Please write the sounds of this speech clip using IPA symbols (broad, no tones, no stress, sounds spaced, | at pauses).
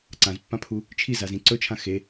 ǀ ã z pː ã pʰ u | t͡ʃʰ i z a z ĩ ǀ ɵ t͡ʃʰ ã x e